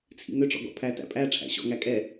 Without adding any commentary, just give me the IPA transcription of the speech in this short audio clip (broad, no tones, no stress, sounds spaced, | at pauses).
t͡sʰ ḭ ŋ ø ʈ͡ʂ ɔ̰ ɡ ɔ̰ pʰ æ t æ̰ pʼ æ ʈ͡ʂʰ æ̰ ɕ ɔ̰ ŋ æ kʼ ɛ